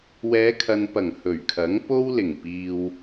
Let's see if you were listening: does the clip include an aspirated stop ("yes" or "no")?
yes